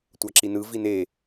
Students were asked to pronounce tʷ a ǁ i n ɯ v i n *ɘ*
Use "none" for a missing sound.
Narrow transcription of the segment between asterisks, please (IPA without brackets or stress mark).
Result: e